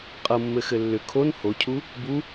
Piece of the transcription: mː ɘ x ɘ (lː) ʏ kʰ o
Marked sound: correct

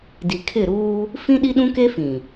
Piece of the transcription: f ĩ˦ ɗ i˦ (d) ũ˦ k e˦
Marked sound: incorrect: ɗ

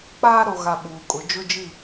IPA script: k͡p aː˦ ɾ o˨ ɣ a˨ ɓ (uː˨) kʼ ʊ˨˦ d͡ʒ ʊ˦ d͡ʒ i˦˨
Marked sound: correct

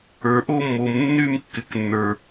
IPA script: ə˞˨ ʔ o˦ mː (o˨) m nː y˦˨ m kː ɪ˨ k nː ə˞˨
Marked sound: correct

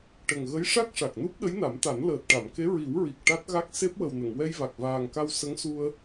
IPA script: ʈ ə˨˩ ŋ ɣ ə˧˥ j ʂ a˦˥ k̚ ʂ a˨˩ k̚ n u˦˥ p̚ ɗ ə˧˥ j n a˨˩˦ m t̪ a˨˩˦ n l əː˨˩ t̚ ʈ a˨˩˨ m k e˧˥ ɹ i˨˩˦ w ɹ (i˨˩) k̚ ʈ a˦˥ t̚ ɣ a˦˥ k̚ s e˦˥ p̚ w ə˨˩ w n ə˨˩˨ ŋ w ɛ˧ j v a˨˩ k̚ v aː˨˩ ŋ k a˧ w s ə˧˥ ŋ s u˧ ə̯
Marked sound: correct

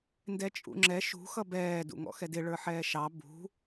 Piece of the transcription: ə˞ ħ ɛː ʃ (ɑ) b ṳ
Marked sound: correct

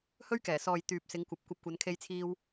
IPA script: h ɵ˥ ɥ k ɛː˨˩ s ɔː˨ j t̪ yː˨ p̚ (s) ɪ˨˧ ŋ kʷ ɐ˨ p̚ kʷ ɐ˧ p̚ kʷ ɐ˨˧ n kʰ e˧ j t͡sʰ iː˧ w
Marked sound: correct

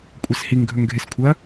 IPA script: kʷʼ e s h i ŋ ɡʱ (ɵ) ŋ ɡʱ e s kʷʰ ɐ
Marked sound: correct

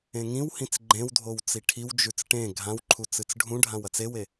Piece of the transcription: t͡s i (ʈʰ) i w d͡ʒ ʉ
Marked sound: correct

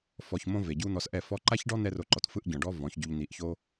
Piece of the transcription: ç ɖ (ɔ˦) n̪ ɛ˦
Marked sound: correct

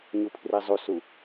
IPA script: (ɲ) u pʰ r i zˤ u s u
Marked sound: correct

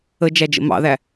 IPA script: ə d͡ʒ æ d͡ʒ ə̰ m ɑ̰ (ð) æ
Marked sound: correct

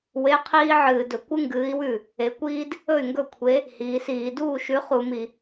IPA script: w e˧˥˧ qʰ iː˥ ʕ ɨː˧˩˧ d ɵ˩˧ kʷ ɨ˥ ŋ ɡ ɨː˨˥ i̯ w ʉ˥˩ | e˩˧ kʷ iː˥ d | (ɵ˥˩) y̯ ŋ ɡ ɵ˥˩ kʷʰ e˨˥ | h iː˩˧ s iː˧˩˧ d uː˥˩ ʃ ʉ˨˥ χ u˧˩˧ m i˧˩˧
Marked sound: correct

